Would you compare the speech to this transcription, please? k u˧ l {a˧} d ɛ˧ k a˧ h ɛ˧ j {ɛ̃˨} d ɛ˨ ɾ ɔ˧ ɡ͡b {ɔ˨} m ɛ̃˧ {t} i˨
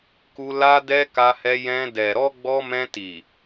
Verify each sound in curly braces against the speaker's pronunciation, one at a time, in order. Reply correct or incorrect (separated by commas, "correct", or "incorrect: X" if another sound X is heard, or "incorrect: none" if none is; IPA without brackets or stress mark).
correct, incorrect: ɛ̃˧, incorrect: ɔ˧, correct